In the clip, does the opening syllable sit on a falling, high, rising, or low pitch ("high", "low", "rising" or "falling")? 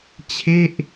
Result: falling